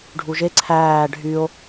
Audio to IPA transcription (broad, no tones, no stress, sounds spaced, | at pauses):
ɖʱ u ʒ e ǀʰ æː ɖʱ yː o̯